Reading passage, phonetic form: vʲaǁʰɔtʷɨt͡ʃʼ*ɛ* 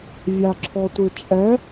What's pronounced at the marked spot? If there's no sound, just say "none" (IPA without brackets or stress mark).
ɛ